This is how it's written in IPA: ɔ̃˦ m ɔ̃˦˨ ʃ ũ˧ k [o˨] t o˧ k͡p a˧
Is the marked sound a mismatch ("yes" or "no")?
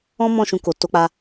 no